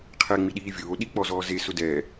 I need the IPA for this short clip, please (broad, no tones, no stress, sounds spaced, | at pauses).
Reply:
qʰ ɛ ŋ͡m i ɗ iː vʲ oː ɗ i k͡p ɔ z ɔː z e s ʊ d ɛː